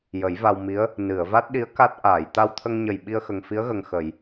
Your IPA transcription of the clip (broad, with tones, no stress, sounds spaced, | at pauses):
j ə˨˩˦ j v a˧ w m i˧˥ ə̯ | n ɨ˨˩˨ ə̯ v a˦˥ t̚ ɗ i˧˥ ə̯ k a˦˥ t̚ ʔ aː˨˩˨ j t̪ a˧ w t̪ʰ ə˧ ŋ ɲ ə˨˩ j ɓ i˧ ə̯ x ə˨˩ ŋ f i˧˥ ə̯ ɣ ə˨˩ ŋ x ə˨˩˨ j